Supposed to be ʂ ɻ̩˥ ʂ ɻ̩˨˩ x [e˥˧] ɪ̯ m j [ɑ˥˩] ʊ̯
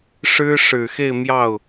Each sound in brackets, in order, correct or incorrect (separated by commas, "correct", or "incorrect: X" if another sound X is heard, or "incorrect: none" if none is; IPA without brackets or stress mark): correct, correct